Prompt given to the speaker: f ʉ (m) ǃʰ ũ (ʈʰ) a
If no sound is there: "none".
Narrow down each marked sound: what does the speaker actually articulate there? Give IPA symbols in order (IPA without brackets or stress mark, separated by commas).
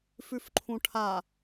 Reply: f, ʈʰ